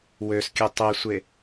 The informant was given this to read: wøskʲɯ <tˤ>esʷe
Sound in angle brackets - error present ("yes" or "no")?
no